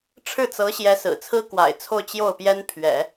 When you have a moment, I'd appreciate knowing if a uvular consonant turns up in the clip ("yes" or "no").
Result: no